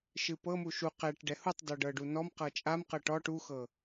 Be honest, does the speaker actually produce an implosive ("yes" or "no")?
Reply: no